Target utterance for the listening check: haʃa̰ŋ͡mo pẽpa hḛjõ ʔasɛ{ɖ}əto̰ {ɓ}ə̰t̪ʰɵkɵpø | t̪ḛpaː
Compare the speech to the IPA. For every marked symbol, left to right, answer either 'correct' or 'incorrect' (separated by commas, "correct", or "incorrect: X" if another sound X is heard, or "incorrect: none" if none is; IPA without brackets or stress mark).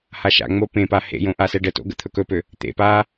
correct, incorrect: ɡ